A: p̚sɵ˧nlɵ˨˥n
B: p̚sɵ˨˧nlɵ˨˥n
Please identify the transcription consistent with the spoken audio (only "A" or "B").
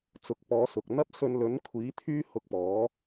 A